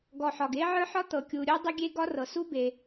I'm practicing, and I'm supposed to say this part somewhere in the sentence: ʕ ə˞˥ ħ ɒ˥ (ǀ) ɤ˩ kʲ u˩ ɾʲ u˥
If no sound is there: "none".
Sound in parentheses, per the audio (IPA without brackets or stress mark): t̪